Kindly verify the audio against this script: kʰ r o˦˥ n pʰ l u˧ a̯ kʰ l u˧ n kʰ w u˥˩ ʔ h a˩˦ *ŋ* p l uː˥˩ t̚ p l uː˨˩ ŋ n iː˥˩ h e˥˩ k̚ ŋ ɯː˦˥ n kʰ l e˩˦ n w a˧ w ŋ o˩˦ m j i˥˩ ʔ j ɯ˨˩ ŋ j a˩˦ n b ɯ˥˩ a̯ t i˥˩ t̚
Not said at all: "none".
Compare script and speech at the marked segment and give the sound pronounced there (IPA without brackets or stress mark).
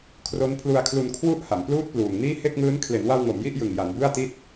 m